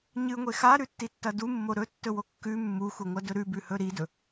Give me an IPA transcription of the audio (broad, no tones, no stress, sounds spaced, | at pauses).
ɲ ɨ ŋʷ e x a ɾ ʉ tː i tː ɐ d u mː o ɾ ɵ tː ɵ w o kː ʉ mː u x u ŋʷ ɐ d ɵ ɾ ʉ b ʉ h ɵ ɾ i d ɵ